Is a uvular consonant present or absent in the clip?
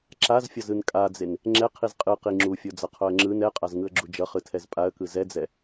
present